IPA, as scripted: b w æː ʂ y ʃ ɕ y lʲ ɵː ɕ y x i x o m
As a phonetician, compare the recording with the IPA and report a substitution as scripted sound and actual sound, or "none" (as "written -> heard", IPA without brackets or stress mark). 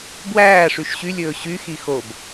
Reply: m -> b